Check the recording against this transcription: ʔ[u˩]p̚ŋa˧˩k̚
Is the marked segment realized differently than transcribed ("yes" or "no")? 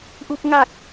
yes